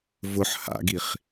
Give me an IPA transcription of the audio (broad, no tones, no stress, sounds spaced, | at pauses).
v ʊ ħ h a̰ ɡ i χ